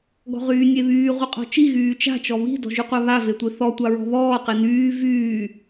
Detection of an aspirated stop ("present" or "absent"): absent